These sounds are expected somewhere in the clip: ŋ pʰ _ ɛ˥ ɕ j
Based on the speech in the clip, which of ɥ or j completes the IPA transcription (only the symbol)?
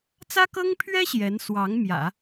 ɥ